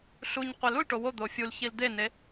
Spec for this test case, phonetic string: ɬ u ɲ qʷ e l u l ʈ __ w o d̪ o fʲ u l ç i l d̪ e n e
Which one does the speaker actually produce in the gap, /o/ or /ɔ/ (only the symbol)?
o